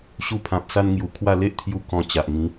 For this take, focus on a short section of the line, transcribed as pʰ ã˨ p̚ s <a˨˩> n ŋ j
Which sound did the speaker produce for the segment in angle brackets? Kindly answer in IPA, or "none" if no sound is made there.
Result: a˧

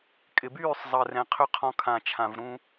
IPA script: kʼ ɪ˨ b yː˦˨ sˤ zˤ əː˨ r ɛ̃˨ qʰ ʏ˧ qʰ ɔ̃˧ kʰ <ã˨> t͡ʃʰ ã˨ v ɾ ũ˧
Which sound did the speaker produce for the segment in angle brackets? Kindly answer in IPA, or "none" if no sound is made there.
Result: ã˨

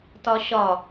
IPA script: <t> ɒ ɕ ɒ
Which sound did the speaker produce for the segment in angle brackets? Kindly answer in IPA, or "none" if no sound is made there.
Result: t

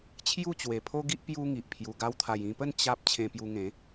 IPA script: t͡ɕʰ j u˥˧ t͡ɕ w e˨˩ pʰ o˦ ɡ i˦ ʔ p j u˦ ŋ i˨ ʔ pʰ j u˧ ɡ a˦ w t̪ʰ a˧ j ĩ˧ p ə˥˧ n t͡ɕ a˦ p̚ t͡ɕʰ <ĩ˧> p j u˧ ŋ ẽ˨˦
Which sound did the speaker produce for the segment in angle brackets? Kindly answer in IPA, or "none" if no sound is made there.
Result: ẽ˧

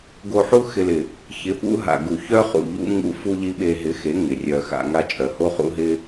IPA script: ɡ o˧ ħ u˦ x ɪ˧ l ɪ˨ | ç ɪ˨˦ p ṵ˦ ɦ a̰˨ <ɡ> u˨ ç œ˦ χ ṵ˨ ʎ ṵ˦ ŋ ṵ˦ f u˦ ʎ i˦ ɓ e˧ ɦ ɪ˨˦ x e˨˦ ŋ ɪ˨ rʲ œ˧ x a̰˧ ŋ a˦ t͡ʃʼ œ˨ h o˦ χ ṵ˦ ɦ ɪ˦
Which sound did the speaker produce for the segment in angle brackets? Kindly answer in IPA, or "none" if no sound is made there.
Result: ɡ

